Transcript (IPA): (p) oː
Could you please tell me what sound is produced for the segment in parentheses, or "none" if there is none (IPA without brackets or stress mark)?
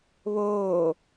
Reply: β